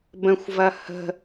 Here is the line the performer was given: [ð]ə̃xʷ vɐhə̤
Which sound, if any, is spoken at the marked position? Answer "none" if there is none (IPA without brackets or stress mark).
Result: b